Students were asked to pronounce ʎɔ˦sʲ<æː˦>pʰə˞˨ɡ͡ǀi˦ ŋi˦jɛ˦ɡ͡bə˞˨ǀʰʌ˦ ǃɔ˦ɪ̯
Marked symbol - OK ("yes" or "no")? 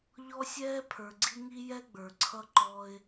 no